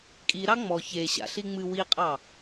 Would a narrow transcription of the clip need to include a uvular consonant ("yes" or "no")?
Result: yes